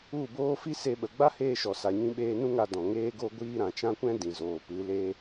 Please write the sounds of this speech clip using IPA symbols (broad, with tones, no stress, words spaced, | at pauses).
u˦˨boː˦ fi˦se˧ɓə˨ ɡ͡ba˦heː˧ʃɔ˨ sa˨ɲĩ˧ɓeː˧nũ˦ ŋa˧ dɔ̃˨ŋeː˦ ɡo˦ɡʷiː˦ ɾã˨t͡ʃã˦kʷɛ̃˦ dĩ˨zoː˨ pɨ˨˦le˦